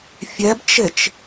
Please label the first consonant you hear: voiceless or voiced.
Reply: voiceless